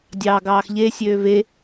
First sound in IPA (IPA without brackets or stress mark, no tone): dʲ